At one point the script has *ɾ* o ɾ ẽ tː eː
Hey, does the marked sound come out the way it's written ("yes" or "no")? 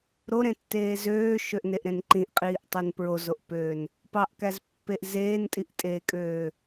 yes